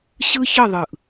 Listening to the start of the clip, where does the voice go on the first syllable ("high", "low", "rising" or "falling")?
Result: high